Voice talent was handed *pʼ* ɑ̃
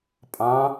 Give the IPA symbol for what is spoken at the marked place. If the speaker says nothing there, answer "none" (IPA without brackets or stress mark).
pʼ